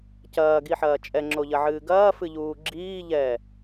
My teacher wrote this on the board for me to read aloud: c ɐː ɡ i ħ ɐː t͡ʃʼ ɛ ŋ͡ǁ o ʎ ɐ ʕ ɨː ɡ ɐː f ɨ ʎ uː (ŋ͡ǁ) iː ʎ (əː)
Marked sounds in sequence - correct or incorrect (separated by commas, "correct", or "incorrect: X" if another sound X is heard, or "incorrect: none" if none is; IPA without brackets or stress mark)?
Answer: incorrect: ɡ͡ǁ, incorrect: ɛː